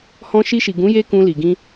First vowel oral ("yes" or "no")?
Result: no